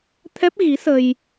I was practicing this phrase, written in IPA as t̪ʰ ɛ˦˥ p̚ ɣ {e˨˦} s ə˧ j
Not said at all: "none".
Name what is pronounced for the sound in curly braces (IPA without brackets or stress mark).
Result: i˨˦